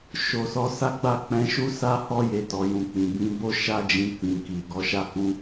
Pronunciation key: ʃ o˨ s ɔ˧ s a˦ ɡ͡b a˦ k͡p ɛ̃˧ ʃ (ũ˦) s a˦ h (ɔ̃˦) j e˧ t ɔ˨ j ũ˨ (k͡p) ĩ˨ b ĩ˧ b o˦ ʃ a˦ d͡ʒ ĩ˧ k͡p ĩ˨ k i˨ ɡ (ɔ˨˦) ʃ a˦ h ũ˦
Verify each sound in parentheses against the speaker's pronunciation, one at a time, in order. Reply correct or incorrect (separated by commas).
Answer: incorrect, incorrect, correct, correct